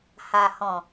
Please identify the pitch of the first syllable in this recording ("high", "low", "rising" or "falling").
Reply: low